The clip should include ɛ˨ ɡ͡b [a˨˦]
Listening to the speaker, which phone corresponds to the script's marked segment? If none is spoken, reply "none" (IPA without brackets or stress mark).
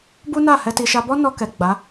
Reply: a˨˦